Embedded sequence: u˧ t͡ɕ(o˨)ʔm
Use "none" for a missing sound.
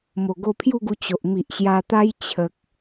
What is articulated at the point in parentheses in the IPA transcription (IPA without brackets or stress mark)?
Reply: o˨